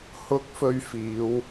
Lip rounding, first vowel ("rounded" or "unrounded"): rounded